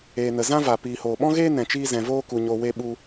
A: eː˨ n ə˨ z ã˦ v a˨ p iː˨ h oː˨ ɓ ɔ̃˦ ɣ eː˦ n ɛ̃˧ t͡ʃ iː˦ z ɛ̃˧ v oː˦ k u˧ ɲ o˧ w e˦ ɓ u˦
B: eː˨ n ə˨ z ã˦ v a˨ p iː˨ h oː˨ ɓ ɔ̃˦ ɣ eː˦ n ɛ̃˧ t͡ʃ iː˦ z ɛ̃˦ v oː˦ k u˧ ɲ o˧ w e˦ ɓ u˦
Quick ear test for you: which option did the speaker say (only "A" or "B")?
A